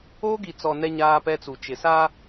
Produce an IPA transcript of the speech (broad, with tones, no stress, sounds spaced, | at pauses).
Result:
oː˦ ɡ i˨ t͡s ɔ˨ n ɛ˦ ɲ aː˦ p ɛ˦ t͡s u˨ t͡ʃ ɪ˨ s aː˦